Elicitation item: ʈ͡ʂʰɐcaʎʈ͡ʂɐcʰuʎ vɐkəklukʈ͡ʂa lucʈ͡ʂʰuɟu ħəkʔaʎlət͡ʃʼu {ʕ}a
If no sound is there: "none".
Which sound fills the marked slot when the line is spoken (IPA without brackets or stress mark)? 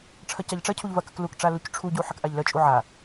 ʕ